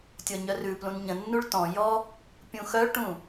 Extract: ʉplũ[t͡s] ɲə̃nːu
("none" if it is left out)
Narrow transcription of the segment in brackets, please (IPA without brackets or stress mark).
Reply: n